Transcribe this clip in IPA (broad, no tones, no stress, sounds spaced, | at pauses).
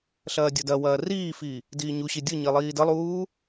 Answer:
ɬ ɐː dʲ ə d ɐ w ɐː r iː f i | d iː ɲ u ɕ i dʲ ɯ ɲ i lˠ iː d ə lˠ uː